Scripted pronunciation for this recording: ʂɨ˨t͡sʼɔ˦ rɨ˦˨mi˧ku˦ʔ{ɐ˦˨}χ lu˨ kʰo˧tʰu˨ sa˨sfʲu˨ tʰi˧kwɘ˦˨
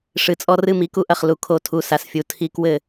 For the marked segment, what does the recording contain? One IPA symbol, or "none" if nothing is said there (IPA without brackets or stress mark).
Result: ɐ˦˨